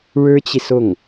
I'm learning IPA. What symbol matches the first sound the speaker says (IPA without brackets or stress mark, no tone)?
ɻ